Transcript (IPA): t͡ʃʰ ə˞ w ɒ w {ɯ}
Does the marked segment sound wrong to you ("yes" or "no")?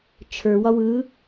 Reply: no